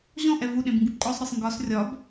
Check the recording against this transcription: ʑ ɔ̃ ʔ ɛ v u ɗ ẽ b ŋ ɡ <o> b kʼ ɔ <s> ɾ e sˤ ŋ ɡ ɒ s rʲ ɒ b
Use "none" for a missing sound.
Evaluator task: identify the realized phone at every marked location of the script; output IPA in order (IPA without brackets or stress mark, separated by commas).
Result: u, sˤ